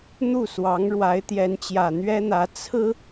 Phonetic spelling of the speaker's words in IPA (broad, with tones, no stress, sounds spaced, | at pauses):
n̪ u˥˩ s w ɑ˧˥ ŋ ɻ w a˧˥ ɪ̯ t̪ j ɛ˧˥ n t͡ɕ j ä˨˩ n̪ ɥ ɛ˥ n̪ ä˧˥ t͡sʰ ɹ̩˥